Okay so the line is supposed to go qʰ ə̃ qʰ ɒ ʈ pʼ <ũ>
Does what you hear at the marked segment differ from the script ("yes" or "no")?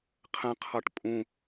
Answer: no